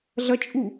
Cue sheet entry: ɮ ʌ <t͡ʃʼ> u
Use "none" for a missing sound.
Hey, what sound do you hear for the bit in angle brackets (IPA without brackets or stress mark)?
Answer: t͡ʃʼ